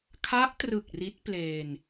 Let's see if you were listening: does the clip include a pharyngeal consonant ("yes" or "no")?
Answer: no